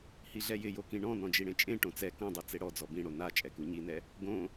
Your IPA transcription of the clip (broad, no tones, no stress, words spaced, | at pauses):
hiɮɛjɪjo kĩɳɔ̃ nɔ̃d͡ʒiɽẽt͡ʃʼẽ ʈõt͡sɛ kõdˤu t͡seɽɔ d͡zɔbĩɽo na t͡ʃʼɛkuɲinɛ | ɡõ